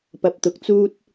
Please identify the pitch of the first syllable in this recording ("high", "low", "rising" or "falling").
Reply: low